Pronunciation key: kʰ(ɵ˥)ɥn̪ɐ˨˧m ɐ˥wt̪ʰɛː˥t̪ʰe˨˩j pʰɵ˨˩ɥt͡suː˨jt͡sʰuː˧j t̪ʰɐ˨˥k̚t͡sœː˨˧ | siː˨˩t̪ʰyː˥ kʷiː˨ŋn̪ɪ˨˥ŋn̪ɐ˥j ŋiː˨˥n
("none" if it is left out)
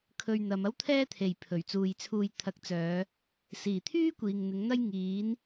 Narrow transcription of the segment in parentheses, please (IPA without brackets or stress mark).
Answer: ɵ˧